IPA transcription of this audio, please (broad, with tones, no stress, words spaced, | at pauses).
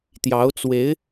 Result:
t̪jɑ˧˥ʊ̯ t͡swe˧˥ɪ̯